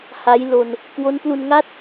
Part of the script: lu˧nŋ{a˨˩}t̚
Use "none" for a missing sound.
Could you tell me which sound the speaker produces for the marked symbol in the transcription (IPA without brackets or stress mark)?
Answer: a˥˩